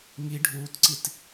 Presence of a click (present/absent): present